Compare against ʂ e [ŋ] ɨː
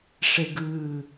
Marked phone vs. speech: incorrect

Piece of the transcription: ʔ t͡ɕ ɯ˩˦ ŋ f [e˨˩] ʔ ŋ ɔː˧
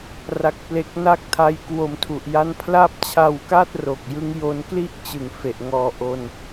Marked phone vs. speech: correct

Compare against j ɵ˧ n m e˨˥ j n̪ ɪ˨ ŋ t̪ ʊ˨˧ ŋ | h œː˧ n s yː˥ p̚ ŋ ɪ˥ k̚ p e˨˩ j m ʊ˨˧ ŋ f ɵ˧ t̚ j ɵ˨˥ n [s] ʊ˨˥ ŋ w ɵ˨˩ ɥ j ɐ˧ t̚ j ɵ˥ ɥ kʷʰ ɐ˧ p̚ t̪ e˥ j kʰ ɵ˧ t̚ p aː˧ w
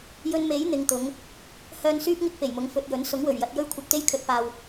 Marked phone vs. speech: correct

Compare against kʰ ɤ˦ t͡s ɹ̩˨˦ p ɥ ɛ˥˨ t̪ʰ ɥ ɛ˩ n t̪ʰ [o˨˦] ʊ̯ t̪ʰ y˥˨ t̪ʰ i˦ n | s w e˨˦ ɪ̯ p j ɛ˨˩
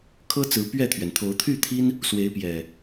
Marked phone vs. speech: correct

